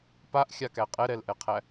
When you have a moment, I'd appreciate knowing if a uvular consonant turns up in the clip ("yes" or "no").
yes